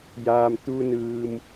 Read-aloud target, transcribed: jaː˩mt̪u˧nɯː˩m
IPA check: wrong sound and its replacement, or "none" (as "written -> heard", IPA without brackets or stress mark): none